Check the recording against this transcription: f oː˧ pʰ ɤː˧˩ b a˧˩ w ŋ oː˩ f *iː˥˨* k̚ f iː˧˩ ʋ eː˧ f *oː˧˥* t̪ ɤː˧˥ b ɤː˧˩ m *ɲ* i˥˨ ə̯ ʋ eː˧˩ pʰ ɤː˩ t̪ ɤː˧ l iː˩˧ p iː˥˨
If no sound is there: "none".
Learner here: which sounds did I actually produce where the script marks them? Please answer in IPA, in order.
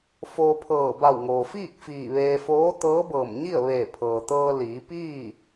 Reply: iː˥˨, oː˧˥, ɲ

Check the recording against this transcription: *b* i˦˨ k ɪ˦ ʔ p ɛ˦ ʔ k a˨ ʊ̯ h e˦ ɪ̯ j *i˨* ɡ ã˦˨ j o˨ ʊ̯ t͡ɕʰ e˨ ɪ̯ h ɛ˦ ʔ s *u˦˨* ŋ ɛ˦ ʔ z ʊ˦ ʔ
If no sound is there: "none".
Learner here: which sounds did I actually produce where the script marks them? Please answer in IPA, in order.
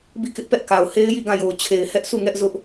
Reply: b, i˦˨, u˦˨

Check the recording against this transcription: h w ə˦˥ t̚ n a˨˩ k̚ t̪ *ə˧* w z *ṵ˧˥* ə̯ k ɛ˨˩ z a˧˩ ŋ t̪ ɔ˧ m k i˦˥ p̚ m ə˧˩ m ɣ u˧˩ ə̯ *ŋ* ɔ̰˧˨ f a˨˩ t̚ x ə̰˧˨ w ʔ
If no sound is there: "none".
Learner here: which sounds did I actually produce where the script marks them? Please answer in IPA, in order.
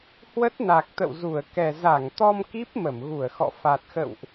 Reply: ə̰˧˨, u˧˩, x

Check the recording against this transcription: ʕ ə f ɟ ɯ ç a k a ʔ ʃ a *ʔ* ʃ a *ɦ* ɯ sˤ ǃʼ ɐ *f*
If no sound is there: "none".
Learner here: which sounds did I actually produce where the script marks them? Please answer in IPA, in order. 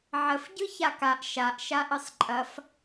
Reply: ʔ, ʔ, f

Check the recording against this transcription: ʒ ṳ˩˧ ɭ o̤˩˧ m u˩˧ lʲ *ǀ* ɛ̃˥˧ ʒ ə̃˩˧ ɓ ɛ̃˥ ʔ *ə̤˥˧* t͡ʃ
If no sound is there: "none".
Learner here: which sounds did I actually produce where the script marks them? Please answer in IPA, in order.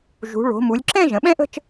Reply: ǁ, ə̤˥˧

